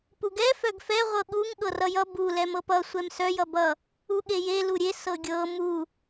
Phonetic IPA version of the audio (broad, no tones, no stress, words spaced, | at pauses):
puɡɛ fœɡfɛ ʁʷɤɠuŋ ɠɤrʌjʌ bu lɛmɤpʌ sʷɛmsœ jʌbʌ | uɠeje luɾʲe sɤɡʲɤ mu